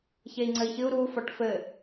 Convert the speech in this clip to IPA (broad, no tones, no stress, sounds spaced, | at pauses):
ç e i̯ ŋ͡ǀ ɘ i̯ ç ɨ u̯ ɾ u f ɔ ʈ f ɘ